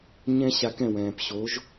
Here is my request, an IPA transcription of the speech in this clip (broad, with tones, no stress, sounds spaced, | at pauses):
ɲ ɛ̃˥ ɕ a˧ k ɛ̃˥˩ w ɛ̃ː˩ p ɕ o˩˥ ʒ